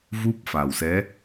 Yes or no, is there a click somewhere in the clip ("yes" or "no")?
no